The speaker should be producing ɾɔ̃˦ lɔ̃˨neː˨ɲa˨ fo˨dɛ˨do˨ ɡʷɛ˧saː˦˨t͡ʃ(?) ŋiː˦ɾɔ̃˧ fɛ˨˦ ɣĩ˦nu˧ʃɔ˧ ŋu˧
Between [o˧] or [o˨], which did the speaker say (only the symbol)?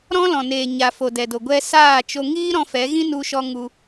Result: o˧